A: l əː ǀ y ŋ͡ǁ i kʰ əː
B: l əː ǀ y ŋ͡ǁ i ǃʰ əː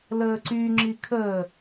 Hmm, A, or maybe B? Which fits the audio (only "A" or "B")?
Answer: A